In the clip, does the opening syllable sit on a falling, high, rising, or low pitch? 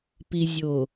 low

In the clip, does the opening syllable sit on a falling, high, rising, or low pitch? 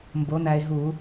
rising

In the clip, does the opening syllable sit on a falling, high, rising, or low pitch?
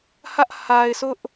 high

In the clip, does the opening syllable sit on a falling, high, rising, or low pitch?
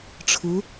rising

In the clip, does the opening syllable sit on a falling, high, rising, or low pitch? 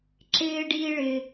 high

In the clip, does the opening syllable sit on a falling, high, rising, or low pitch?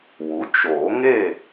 rising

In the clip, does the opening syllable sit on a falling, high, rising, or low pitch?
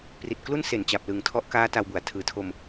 low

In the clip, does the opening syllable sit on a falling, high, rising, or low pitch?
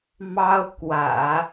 high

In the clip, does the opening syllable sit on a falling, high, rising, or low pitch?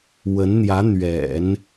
rising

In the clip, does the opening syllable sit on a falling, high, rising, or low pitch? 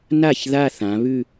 falling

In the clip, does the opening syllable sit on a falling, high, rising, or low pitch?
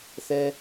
low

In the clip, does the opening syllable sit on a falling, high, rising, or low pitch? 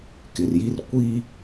low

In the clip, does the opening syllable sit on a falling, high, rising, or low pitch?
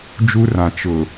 high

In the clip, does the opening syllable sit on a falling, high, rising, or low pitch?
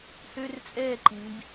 high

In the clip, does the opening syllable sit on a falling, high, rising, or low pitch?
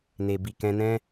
low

